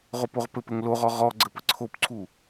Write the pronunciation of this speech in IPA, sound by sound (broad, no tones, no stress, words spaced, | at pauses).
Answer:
ʁopoʁpɘpɘŋ loʁɔ ʁɔ ɡ͡ǀɘpəǀʰopǀʰu